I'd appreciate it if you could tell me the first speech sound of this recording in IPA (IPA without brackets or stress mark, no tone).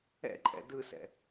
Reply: ɛ̰